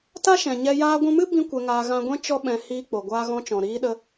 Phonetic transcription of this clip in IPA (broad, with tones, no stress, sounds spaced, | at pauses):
t a˦ ʃ ɛ̃˨ ɲ ɛ˧ j aː˧ ɡʷ ũ˧ m ɨ˦ b ĩ˧ kʷ ɛ˧ ŋ aː˧ ɣ ã˧ ɡʷ ɛ̃˦ t͡ʃ ɔ˦ ɓ ɛ̃˧ h iː˧ k͡p o˨ ɡʷ aː˧ ɣ ɔ̃˧ t͡ʃ ɔ̃˨ ɾ iː˧ ɗ ə˧